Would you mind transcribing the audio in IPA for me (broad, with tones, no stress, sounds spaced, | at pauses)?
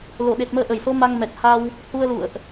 l o˧˩ ɗ e˨˩ t̚ m əː˧ ʔ ə˧˩ j s o˨˦ m a˧ ŋ m ɛ˨˩ k̚ h a˧ w | h u˧ ə̯ l ṵ˧˨ ə̯ ʔ